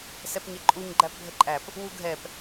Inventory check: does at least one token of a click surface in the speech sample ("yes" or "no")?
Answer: yes